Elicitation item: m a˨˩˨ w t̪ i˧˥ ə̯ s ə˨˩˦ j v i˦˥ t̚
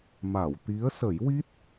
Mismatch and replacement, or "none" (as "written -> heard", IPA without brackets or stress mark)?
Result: v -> w